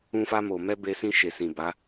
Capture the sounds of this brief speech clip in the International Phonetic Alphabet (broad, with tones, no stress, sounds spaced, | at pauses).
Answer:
ũ˧ f a˧ m o˨ m ɛ˧ b e˧ s ĩ˧ ʃ e˨ s ĩ˨ b a˨˦